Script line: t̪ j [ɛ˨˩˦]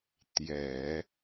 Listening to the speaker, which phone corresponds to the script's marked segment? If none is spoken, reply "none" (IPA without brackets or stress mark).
ɛ˨˩˦